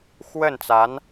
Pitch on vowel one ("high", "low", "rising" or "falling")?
falling